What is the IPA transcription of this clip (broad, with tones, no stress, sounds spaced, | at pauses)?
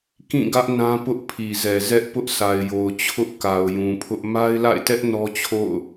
k ĩ˦˨ ɡ ä˦ ʔ n ã˦ p ʊ˦ ʔ pʰ i˨ z ɛ˨ z ɛ˦ ʔ p ʊ˦ ʔ s a˨ ɪ̯ j o˨ ʊ̯ t͡ɕʰ ʊ˦ ʔ k a˨ ʊ̯ j ũ˨ pʰ ʊ˦ ʔ m a˦ ɪ̯ l a̰˦˨ ɪ̯ t ɛ˦ ʔ n ɔ˦ t͡ɕʰ o̰˦˨ ʊ̯